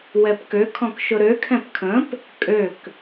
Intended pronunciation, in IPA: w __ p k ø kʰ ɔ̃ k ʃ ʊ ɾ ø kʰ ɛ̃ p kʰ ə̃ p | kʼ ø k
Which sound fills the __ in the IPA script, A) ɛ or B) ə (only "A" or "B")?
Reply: A